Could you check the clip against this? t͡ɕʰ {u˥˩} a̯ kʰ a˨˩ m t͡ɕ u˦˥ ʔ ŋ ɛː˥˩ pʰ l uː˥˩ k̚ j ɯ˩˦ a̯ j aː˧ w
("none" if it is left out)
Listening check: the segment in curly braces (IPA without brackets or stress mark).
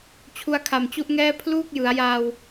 u˧